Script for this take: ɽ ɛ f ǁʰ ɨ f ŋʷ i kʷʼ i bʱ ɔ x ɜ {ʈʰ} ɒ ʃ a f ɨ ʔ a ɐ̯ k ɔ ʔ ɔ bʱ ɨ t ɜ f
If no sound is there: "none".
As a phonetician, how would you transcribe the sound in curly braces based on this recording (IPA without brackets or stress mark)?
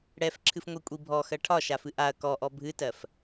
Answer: ʈʰ